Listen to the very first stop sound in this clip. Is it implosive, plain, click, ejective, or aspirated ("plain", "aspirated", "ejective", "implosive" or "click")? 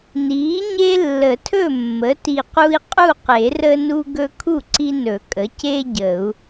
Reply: aspirated